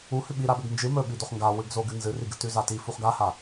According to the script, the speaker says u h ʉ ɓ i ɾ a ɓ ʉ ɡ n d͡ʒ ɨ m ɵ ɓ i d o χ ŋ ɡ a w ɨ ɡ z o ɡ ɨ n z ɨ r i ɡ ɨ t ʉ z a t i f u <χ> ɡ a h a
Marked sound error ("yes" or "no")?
no